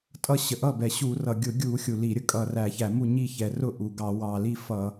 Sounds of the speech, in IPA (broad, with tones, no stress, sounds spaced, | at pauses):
tʼ ʌ˥˩ ɕ ə˨˩ ʔ ʌ˥˩ b ɛ˨˩ ɕ u˧˩˧ r ʌ˨˩ ɡʲ ʊ˧˩˧ ɡʲ u˧˩˧ xʲ u˨˩ l i˧˩˧ ɾʲ ə˥˩ kʼ ʌ˨˩ r æ˧˩˧ ç æ˧˩˧ m u˥˩ ɲ i˥˩ ç ɛ˨˩ r ʊ˥˩ ʔ u˨˩ ɡ ɑ˧˩˧ w ɑ˨˩ l i˥˩ f ʌ˧˩˧